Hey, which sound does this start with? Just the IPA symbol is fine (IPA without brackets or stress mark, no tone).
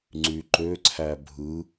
ŋ͡ǀ